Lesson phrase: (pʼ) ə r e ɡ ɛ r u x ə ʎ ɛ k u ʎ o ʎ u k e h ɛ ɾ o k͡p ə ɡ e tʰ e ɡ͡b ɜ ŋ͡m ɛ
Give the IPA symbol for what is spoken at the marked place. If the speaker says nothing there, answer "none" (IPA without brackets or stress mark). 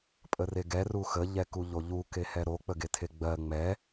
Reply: pʼ